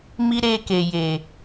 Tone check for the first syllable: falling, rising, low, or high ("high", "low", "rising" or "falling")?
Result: high